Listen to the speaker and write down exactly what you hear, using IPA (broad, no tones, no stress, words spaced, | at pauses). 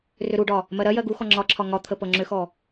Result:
rʏɾuɖɒ | mɜɾɜjɜ ɡuxɔ ŋ͡ǁɒǁʰɒ ŋɒt̪ʰə pɤŋ͡ǁʏxɔ